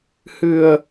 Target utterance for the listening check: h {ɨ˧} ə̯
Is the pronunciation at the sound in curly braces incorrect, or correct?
correct